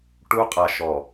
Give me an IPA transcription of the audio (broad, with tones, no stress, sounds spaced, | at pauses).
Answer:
ʈ u˦ qʼ a˨ ʃ ɔ˨